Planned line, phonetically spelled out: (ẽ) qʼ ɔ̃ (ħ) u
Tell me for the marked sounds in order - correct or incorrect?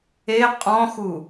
incorrect: e, incorrect: x

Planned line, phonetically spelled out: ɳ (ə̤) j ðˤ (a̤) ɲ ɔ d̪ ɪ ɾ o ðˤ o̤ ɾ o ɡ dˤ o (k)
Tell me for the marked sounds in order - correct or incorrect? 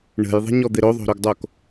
correct, incorrect: ə̤, correct

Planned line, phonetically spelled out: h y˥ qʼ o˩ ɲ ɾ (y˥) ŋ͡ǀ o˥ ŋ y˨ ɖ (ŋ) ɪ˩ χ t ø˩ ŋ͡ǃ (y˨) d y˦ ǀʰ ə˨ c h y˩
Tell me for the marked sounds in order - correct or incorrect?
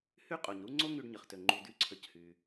incorrect: u˥, incorrect: ɲ, incorrect: u˨

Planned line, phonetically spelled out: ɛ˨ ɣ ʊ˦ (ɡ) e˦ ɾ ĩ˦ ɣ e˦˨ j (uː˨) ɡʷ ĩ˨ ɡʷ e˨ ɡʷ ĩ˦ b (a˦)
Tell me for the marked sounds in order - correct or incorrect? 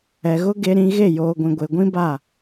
correct, incorrect: oː˨, incorrect: a˦˨

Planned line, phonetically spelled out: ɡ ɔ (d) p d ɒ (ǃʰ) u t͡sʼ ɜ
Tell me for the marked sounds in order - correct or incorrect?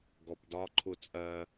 incorrect: none, correct

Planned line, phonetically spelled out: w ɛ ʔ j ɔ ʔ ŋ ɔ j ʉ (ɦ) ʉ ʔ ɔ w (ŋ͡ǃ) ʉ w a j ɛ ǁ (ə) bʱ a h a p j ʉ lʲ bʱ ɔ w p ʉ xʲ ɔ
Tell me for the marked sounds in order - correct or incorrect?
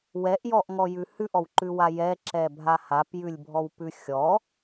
incorrect: h, incorrect: ǃ, incorrect: ɛ

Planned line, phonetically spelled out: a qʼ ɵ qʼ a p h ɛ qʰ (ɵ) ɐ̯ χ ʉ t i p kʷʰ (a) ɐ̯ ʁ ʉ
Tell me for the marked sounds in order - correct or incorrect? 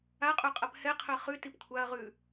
correct, correct

